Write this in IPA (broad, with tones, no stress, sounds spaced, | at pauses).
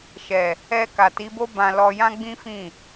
ʃ ɛ˨ | ɛ˧ k a˨ t i˨˦ b o˦ b ã˧ l ɔ˧ j ã˦ ɡ͡b ĩ˦ f ĩ˦˨